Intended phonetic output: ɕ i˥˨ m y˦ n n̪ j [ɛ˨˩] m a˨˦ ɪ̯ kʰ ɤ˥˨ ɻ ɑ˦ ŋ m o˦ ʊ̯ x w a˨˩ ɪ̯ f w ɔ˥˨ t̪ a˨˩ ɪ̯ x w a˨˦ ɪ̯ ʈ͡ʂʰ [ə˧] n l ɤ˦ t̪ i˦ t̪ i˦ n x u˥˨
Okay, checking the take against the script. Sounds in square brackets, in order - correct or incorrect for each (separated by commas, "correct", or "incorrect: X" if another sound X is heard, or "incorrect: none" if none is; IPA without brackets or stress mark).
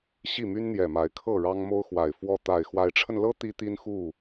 correct, correct